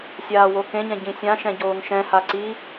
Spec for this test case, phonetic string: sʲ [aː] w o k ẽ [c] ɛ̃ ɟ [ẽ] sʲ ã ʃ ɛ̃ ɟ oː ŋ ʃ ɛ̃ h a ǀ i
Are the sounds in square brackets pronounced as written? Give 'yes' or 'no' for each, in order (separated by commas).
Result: yes, no, no